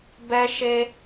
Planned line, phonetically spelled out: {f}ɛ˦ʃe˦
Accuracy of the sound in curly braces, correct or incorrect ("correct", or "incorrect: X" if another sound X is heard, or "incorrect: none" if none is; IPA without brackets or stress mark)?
incorrect: b